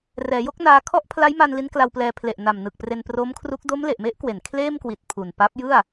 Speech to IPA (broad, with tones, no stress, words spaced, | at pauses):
rɛː˩˦jo˥˩k̚naː˧ kʰɔ˥˩ʔpʰla˦˥jma˧n li˦˥nkla˧wplɛː˧ pʰle˨˩ʔna˨˩mnɯ˨˩k̚ pre˧npro˦˥mkʰru˦˥k̚ do˦˥mle˨˩ʔme˦˥ʔkwe˩˦n kʰleː˥˩mkwi˨˩t̚ pʰu˨˩n pa˦˥p̚jɯ˥˩a̯